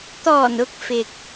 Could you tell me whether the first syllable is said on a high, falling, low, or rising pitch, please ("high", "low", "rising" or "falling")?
low